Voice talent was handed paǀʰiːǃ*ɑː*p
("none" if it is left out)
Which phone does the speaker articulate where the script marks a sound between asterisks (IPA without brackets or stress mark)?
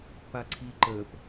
əː